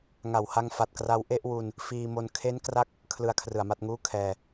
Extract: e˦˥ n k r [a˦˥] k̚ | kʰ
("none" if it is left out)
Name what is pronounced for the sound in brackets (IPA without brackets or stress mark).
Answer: a˦˥